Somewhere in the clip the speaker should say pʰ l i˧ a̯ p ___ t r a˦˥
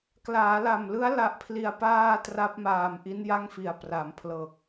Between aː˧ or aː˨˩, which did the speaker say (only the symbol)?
aː˧